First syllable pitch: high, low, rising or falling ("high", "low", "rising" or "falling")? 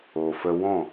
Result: low